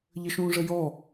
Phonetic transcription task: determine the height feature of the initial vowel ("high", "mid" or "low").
mid